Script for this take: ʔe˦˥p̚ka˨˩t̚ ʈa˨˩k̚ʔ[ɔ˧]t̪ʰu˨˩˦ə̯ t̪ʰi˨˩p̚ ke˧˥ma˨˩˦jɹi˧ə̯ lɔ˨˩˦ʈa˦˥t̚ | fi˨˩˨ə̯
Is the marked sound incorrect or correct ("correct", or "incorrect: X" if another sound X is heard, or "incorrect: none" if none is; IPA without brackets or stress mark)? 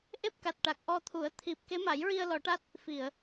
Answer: correct